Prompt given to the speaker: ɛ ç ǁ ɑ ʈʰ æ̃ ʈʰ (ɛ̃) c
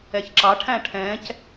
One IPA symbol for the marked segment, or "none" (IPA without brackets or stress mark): ɛ̃